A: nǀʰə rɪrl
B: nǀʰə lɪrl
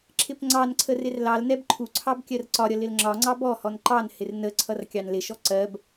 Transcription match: A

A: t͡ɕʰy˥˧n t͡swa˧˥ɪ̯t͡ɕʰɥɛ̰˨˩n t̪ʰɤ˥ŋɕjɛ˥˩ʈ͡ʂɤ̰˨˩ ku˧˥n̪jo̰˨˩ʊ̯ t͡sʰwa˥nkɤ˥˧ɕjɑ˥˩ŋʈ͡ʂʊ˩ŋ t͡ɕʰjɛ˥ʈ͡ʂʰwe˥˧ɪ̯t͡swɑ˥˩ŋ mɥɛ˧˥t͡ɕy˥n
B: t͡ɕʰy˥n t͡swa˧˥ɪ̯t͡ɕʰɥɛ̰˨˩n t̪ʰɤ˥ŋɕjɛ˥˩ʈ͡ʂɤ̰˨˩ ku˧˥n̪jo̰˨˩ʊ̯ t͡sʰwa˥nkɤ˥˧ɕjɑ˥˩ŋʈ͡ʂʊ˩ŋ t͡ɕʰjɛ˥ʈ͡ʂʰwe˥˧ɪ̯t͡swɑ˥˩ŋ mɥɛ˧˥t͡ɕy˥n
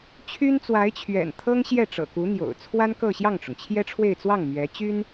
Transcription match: B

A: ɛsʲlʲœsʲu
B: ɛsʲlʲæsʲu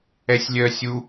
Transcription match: A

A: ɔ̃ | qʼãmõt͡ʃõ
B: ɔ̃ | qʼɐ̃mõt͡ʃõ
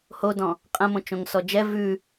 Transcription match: B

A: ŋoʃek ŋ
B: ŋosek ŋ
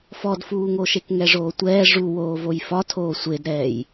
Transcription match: A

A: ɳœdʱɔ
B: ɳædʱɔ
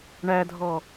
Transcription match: B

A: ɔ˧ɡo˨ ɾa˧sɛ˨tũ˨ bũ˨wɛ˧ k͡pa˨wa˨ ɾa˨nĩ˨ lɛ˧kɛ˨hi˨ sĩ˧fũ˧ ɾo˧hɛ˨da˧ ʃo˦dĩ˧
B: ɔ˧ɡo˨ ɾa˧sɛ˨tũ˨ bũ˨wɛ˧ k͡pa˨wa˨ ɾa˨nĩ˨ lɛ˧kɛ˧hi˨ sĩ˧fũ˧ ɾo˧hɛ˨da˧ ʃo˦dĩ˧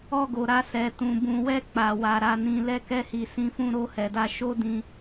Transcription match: B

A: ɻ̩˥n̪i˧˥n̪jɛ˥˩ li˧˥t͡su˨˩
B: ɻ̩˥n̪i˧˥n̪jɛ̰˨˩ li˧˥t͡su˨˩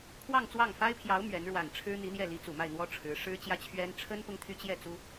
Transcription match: A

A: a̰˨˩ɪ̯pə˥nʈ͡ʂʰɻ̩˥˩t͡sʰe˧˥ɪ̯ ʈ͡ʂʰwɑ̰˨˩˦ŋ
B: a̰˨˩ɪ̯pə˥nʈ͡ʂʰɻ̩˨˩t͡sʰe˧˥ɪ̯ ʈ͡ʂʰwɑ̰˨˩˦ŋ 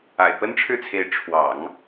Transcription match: A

